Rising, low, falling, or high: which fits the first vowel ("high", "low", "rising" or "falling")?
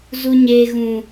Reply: high